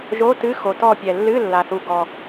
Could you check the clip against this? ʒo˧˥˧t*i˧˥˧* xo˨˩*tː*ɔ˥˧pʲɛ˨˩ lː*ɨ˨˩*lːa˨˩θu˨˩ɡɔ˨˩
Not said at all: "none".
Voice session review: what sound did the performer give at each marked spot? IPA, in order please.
ɨ˧˥˧, t, ɨ˧˥˧

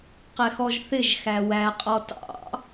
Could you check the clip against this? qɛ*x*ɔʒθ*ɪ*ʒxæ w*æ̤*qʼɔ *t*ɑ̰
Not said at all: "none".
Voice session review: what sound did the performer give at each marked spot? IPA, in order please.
x, ɪ, æ, t

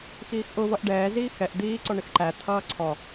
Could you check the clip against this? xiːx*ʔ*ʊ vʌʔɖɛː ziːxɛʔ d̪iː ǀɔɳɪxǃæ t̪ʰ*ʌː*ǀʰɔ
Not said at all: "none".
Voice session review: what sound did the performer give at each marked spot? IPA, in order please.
ʔ, ʌː

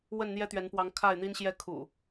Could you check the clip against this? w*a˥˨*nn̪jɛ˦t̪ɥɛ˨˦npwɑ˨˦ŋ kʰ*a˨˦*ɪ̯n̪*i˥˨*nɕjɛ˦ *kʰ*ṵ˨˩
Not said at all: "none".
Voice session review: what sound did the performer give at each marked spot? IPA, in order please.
ə˥˨, a˥˨, i˦, kʰ

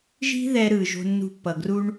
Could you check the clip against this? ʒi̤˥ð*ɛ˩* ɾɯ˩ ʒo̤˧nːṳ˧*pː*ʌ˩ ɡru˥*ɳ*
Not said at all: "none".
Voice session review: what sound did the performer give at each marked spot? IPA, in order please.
ɛ˧, pː, ɳ

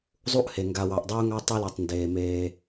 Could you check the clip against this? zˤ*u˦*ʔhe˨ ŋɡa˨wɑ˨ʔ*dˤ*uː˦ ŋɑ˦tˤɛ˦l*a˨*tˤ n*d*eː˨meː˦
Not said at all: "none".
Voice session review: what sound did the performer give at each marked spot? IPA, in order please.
u˦, dˤ, a˨, d

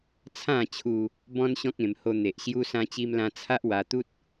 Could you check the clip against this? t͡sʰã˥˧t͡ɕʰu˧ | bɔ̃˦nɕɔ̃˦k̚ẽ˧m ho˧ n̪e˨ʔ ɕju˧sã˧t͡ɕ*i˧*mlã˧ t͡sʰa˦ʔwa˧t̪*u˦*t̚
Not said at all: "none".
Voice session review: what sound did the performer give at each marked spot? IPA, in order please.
i˧, u˦

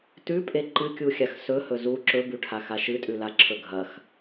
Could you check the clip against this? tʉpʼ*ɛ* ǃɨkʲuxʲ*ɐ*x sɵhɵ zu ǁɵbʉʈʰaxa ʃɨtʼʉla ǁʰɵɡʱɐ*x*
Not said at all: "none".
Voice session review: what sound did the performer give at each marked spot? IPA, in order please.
e, a, x

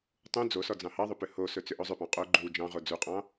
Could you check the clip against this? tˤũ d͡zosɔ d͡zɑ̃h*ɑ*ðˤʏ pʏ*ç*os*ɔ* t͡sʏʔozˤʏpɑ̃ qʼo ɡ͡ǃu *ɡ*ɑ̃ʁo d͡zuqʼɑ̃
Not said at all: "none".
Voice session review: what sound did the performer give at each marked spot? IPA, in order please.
ɑ, h, ɵ, d͡ʒ

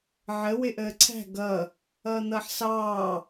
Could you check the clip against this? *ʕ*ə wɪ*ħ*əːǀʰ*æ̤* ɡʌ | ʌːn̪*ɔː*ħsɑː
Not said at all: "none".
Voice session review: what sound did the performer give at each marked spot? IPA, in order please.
ʕ, ʔ, æ̤, ʌː

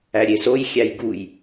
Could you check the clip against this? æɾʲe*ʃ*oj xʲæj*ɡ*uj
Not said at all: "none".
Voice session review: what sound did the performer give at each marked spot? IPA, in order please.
s, ɡ

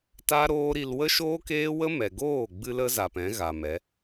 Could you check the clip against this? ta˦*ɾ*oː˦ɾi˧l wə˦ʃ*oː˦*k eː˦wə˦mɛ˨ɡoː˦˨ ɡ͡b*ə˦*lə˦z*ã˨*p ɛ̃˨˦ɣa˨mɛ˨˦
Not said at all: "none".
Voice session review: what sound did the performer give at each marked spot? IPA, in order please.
ɾ, oː˦, ɨ˦, a˨

